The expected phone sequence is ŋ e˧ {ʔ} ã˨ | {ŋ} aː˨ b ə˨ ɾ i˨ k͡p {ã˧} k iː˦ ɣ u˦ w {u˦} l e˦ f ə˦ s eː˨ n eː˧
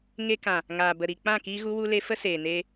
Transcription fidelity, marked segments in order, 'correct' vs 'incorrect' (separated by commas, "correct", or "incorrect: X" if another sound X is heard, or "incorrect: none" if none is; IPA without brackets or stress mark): incorrect: k, correct, incorrect: ã˦˨, correct